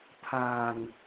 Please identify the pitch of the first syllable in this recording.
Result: low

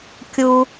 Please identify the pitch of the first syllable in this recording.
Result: low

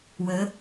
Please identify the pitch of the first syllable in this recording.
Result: rising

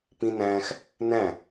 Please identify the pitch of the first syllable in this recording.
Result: high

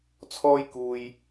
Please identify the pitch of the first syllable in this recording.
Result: high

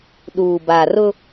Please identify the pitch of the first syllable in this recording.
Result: low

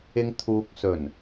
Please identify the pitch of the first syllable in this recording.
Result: high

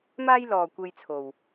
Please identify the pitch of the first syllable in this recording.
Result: high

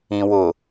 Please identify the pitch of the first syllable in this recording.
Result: low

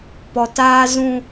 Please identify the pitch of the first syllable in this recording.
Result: low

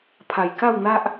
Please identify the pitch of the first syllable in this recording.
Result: low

